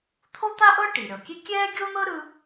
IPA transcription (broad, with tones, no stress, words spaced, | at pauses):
t̪ʰo˥t̪a˥ʔɤ˥ ʈi˩ɾʲɔ˩kʲe˥ kʲɛː˥ɡʲo˥n̪ɤ˥ ɾɯ˥